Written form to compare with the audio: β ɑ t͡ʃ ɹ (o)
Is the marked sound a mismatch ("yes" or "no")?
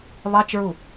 yes